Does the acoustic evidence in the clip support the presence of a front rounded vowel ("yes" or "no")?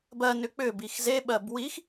yes